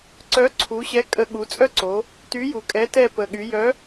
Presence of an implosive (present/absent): present